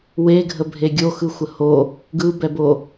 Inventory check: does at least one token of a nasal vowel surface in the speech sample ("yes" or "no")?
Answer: no